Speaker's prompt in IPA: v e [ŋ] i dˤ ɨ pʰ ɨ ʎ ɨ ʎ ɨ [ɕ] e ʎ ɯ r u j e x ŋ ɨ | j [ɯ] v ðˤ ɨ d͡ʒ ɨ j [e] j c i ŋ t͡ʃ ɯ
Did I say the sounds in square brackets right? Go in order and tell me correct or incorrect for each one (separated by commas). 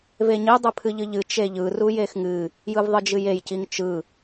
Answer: incorrect, incorrect, correct, correct